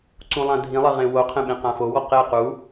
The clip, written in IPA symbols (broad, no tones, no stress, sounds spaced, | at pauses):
ǀ ũ lˠ ã dʱ ĩ lˠ e ʁ ẽ w o qʰ ẽ ɓ ẽ q ã f o w ɔ q e q u